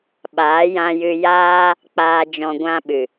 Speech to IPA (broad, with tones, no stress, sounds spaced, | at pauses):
ɓ aː˨˦ j ã˧ j ɨ˧ j aː˦ | k͡p aː˧ d͡ʒ ɔ̃˧ ɡʷ ã˦ ɓ ɨ˨